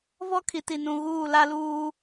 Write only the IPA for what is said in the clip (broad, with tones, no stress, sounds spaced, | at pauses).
v ɔ˦ kʰ i˨ t i˨ n ũ˨ ɣ uː˦˨ l a˦ l uː˦